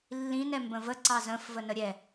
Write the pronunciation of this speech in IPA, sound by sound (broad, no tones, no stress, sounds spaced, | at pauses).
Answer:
lː ĩ n ɛ m b ə̃ v ə ǀ ɑ z ə̃ f v ə n ə ɾʲ ɛ